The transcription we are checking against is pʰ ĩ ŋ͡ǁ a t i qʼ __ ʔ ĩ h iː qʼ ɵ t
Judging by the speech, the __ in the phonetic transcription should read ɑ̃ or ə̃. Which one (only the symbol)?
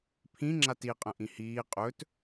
ə̃